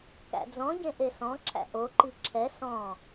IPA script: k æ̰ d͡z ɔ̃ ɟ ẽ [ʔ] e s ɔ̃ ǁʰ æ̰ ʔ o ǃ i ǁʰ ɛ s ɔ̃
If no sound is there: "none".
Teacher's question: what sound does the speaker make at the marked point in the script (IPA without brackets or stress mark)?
ʔ